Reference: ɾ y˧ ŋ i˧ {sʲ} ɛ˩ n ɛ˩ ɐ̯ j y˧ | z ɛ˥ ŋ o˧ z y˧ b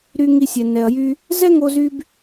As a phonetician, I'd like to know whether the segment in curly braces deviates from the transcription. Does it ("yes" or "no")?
no